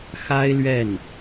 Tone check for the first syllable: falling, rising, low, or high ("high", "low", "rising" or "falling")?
high